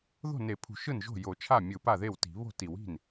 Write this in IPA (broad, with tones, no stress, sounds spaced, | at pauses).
ð o̤˥˩ n e˨˩˦ pʰ ṳ˨˩˦ ʃ ɯ˥˩ n ʒ o̤˥˩ j o˨˩˦ t͡ʃʰ a˥˩ mʲ ɯ˨˩˦ p a˥˩ ð e˥˩ w t i̤˨˩˦ β o̤˥˩ t i˨˩˦ w i̤˥˩ n